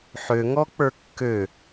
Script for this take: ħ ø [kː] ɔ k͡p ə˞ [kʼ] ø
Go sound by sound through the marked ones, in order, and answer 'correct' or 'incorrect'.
incorrect: ŋ, incorrect: kː

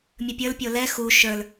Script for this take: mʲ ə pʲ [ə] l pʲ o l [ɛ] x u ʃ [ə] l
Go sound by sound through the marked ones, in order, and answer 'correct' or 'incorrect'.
incorrect: ə˞, correct, incorrect: ə˞

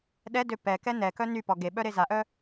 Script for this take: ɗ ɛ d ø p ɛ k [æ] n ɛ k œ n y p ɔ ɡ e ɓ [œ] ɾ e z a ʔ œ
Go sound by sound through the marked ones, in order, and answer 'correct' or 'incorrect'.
incorrect: ɛ, correct

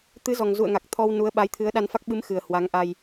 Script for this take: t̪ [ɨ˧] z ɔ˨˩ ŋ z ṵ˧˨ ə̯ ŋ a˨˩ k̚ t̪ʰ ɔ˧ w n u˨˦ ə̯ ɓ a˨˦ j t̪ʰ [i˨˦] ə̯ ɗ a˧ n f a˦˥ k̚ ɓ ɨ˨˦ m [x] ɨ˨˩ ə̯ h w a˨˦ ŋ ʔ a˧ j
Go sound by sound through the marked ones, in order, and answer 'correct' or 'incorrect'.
incorrect: ɨ˨˦, incorrect: ɨ˨˦, correct

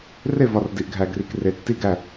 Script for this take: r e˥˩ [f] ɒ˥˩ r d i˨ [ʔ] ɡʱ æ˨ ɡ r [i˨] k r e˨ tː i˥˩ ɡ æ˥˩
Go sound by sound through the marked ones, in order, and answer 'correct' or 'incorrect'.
incorrect: v, correct, correct

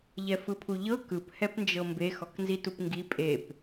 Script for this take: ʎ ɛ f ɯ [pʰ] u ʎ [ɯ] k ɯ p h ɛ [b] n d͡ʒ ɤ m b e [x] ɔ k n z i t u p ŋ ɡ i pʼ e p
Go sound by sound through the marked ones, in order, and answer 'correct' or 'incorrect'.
correct, incorrect: ɤ, incorrect: p, correct

